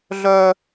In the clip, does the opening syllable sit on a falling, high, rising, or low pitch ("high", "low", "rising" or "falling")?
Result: high